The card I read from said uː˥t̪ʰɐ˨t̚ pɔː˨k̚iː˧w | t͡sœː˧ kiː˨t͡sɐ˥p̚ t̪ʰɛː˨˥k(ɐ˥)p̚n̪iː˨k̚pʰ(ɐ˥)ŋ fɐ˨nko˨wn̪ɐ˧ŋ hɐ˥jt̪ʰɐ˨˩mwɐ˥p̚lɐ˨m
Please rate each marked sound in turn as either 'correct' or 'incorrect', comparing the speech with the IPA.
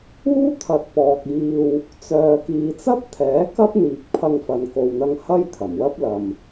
correct, incorrect: ɐ˧

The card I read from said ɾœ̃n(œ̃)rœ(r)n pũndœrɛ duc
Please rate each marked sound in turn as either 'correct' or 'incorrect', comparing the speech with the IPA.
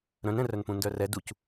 incorrect: ɛ̃, incorrect: none

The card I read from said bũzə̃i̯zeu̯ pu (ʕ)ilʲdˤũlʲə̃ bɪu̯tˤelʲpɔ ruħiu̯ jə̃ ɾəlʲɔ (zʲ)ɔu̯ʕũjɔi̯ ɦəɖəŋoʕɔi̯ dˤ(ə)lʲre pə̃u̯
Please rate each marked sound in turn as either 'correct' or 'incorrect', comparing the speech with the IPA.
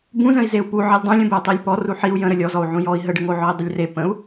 correct, incorrect: z, correct

